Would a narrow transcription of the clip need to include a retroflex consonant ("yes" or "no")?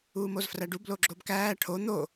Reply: yes